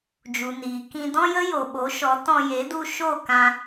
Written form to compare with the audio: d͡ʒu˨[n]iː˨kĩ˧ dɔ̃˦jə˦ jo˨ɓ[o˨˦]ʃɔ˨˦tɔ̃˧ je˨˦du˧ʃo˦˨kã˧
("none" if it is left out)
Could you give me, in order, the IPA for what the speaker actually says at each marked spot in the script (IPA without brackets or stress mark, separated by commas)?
n, o˨˦